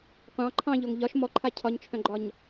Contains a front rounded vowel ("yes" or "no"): yes